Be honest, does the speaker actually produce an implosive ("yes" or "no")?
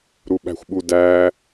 yes